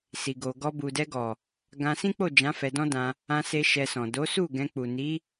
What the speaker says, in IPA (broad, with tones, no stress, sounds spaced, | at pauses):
s i˨ ɡ o˨ ɡ ɔ˧ b u˨ d ɛ˧ ɡ ɔ˨ | ɡ ã˧ s ĩ˦ k͡p o˦˨ d͡ʒ ã˨˦ f ɛ˧ d ɔ̃˦ d ã˧ | ã˧ s e˧ ʃ ɛ˧ s ɔ̃˨ d o˨˦ s u˦˨ ɡ ɛ̃˧ k͡p u˨ n i˨˦